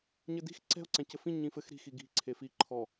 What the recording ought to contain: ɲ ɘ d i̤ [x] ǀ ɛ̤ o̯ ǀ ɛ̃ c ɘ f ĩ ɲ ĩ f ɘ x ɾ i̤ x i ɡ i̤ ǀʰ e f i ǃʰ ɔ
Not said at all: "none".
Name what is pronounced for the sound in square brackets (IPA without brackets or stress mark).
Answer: x